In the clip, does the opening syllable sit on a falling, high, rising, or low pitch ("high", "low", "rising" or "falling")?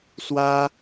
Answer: high